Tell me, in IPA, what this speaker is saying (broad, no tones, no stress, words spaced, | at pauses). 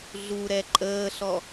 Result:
ɮuɾɛ ǃʼəːɬɔ